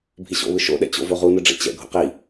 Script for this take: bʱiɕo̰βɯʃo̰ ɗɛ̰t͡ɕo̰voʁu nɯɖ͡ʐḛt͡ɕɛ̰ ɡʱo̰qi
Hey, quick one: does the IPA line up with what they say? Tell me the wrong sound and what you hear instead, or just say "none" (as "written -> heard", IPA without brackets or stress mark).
none